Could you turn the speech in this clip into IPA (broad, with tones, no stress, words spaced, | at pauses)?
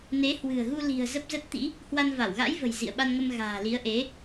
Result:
ne˨˦hwɨ̤˨˩ə̯ɣu˧ li̤˨˩ə̯zə˦˥p̚zə˦˥t̚t̪ḭ˧˥ | hwa˧nva˧˩wɣa̰˧˥jvə̤˨˩j zḭ˧˨ə̯ɓa˧nŋə˧mɣa̤ː˨˩ li˨˦ə̯ʔe˨˦